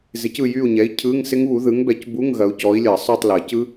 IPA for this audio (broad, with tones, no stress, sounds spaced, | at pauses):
z ɪ˨˥ c ɯ˦˨ j y˦˨ u̯ ɲ ɛ˨˥ i̯ cʰ ɯ˧˥˧ ŋ s ɪ˦˥ ŋ β u˨˥ ð ɯ˨˥ ŋ b ɛ˨˥ c b u˧˥˧ ŋ ɣ ɐ˨˥ u̯ c ɔ˨˥ i̯ lʲ ɐ˨˩˦ sˤ y˦˨ tˤ l ɐ˨˩˦ c ɯ˦˥